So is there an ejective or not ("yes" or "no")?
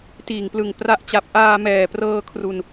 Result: no